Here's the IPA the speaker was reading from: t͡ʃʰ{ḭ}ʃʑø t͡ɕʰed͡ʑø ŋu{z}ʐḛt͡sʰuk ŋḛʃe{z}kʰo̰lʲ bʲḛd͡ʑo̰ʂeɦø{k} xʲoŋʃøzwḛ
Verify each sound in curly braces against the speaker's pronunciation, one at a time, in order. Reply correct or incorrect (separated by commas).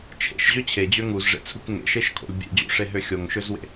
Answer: incorrect, correct, incorrect, incorrect